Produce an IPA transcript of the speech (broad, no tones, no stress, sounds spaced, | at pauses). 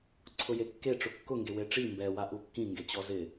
ǀʰ ʊ j e kː e ʈ͡ʂ ʊ kː ʊ ŋ ɡ e w e ʈ͡ʂ i m b ɛ w a ʔ u kː ĩ ŋ ɡ e t͡ɕ ɔ z ɪ